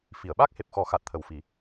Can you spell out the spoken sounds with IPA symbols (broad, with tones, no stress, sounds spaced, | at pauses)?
f i˨˩˨ ə̯ ɓ a˦˥ k̚ h e˨˩ p̚ x ɔ˨˩˦ x a˨˩ t̚ t̪ʰ ə˨˩ w f i˨˩˦